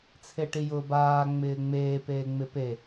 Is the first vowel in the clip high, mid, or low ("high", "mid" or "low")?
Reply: mid